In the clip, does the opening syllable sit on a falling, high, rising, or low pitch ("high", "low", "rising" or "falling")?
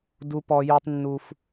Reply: high